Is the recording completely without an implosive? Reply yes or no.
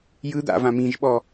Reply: no